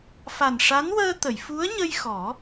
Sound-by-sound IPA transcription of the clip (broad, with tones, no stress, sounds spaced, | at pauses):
f a˨˩ n ʂ a˧˥ n w əː˧ t̪ ə˨˩˨ j f u˧˥ ə̯ ɲ ə˧ j x ɔ˨˩˦